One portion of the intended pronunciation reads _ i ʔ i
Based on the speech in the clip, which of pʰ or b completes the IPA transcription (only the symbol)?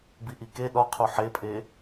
b